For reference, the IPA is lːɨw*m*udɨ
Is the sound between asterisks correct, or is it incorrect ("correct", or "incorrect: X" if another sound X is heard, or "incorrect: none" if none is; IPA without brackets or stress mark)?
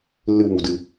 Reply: correct